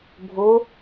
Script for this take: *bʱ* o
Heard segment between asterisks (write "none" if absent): bʱ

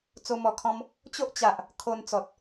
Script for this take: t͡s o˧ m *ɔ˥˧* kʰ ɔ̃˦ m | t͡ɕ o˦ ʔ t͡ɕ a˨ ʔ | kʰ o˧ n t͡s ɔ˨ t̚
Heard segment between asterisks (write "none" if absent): ɔ˨˩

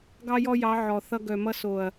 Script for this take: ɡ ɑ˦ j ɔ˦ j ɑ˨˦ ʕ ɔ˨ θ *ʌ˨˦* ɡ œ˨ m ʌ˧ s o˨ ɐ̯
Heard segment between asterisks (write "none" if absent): ʌ˧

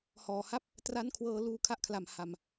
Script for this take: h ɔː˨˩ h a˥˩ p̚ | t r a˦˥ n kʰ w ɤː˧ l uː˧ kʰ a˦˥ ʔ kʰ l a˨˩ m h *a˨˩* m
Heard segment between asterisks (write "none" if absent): a˨˩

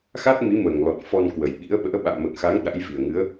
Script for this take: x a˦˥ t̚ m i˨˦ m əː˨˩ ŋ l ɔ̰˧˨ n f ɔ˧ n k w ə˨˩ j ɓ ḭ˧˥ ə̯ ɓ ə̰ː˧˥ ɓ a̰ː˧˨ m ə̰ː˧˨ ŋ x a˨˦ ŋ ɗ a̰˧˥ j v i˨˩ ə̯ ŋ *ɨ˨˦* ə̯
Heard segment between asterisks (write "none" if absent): ɨ˨˦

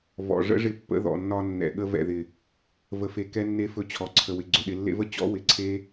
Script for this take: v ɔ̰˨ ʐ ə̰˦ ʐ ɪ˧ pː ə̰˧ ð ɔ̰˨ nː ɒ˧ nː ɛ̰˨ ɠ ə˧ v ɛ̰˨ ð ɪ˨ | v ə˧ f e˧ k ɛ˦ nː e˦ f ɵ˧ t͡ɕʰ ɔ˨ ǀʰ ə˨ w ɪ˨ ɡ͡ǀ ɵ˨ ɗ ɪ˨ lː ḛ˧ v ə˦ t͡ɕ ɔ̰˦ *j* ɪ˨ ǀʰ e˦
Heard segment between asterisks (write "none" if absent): w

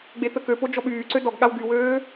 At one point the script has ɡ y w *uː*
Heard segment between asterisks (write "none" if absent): øː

